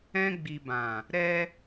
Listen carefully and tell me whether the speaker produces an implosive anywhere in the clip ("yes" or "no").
no